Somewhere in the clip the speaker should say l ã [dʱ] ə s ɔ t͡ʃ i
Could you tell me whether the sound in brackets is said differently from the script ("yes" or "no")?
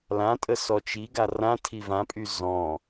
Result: yes